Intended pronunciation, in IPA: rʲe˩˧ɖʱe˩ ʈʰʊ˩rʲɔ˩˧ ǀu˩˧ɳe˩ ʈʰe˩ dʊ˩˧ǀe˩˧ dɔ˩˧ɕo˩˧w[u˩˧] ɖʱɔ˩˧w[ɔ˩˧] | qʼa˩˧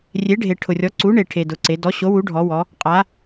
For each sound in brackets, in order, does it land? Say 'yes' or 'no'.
yes, yes

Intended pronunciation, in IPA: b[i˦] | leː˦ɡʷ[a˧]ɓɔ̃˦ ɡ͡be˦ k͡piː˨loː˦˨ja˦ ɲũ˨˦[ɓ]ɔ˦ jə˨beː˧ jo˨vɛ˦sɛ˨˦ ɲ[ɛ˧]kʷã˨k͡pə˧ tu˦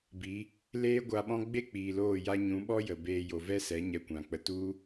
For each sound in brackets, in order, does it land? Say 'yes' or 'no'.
no, yes, yes, yes

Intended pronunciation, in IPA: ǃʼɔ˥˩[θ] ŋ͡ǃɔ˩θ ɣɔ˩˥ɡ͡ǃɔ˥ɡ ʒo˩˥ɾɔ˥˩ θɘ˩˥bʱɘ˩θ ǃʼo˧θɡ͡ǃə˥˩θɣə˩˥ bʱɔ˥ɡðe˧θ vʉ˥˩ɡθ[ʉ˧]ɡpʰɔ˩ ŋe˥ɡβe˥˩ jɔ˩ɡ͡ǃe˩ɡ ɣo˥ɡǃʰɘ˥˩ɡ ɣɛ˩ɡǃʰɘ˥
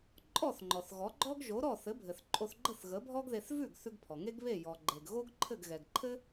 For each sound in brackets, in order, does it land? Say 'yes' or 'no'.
yes, yes

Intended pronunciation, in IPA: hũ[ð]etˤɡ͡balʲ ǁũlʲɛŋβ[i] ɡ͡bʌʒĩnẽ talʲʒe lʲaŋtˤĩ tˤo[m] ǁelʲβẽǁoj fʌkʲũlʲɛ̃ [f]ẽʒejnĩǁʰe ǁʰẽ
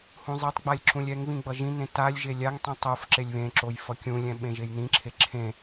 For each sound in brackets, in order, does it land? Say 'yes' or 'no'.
no, no, no, no

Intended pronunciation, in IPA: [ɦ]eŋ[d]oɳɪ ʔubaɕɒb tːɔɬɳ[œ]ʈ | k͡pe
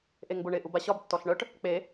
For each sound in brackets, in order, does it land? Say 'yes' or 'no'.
no, no, yes

